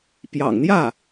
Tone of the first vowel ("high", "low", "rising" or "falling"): low